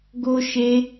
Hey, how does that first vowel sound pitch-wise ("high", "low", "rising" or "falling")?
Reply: high